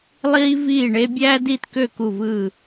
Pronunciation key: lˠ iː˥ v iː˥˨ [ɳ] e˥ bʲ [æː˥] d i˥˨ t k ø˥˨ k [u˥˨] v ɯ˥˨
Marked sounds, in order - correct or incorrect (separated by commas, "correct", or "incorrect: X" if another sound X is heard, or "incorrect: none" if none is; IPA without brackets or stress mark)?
correct, correct, correct